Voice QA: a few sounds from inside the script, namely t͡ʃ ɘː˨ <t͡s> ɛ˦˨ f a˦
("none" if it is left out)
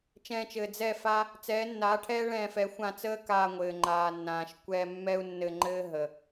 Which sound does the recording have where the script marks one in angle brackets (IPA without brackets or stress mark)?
d͡z